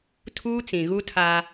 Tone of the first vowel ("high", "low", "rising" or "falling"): high